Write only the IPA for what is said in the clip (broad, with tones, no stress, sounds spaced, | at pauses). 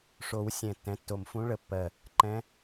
ʂ o˨˩˦ w sʲ ɛ̃˨˩ tː ɛ̃˩˥ tː o˨˩ m f ũ˧˥ ɭ ə˨˩ pː ɜ˨˩ | ǃ ɛ̃˧˥